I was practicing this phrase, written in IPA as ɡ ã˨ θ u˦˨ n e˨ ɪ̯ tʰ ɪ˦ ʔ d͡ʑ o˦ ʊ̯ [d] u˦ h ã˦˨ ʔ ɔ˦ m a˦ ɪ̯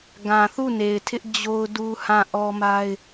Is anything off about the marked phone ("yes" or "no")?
no